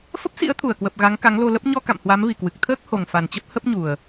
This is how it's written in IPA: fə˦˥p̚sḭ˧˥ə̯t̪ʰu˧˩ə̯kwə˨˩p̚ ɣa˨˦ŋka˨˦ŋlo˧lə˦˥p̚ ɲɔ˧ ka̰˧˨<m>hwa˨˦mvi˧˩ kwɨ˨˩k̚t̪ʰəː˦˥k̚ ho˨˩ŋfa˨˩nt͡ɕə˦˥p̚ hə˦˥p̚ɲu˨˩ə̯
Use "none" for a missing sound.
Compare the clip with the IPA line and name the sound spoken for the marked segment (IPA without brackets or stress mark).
m